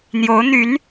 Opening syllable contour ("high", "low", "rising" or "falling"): rising